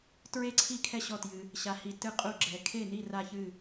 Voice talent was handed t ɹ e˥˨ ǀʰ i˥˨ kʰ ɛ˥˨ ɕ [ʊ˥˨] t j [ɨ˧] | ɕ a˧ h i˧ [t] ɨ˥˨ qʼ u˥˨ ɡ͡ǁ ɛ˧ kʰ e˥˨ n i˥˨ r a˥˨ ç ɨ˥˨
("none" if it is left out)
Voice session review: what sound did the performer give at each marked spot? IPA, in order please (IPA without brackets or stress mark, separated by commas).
ɔ˥˨, ɨ˧, t